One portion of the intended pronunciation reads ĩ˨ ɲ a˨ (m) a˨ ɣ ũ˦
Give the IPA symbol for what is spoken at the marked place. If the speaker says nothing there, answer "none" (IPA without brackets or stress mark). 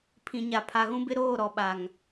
pʰ